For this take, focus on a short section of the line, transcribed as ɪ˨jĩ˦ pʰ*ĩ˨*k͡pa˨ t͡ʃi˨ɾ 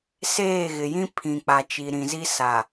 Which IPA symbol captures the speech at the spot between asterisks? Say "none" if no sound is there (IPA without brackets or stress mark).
ĩ˨